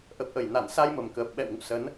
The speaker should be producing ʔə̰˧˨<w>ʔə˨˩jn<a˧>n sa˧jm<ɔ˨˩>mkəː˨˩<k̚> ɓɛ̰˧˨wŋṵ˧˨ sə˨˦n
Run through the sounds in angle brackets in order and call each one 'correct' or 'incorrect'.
correct, incorrect, incorrect, incorrect

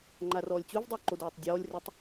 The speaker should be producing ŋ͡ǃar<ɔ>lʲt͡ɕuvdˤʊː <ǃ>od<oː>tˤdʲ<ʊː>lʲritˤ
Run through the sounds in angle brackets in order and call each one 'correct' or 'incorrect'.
incorrect, correct, correct, incorrect

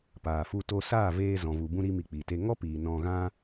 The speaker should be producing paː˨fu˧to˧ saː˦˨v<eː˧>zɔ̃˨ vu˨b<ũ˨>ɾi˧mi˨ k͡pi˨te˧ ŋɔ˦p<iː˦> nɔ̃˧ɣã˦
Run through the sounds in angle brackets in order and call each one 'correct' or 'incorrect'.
correct, incorrect, incorrect

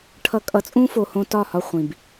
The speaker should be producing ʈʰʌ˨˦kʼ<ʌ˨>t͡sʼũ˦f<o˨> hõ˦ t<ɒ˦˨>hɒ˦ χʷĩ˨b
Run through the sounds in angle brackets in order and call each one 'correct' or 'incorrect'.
correct, correct, correct

